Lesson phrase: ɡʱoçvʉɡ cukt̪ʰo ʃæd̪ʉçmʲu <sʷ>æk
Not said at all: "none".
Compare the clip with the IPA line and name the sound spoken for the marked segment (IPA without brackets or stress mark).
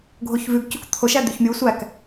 sʷ